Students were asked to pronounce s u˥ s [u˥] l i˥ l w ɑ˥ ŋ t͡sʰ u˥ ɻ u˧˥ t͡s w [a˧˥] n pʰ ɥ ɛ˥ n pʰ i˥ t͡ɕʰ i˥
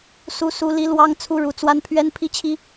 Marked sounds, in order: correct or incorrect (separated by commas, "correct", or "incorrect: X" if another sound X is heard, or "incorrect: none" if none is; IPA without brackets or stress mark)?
correct, incorrect: a˥